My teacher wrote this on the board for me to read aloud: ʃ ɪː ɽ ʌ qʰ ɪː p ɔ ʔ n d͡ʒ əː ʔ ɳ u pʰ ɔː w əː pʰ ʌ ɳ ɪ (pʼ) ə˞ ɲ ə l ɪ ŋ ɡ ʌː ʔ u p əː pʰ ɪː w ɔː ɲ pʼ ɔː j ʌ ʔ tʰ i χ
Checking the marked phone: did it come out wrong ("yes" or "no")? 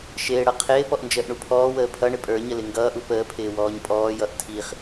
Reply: no